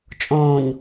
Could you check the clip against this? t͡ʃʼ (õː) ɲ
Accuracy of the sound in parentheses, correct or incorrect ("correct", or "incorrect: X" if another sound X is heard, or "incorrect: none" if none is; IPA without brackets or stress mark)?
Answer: correct